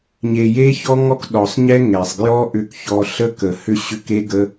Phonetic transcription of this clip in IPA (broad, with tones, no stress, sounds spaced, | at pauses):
ɲ e˨ j e˦ ç ɔ˦ ŋ ɔ˦ k ɗ ɔ˨ sˤ ɲ ɛ˦ ŋ ɛ˨ sˤ ɡ j ɔ˦ ʔ ʏ˧ k ç ɔ˧ ɬ ə˦ k ə˨ h ʏ˧ ɕ ʏ˧ k e˦ ɡ ə˦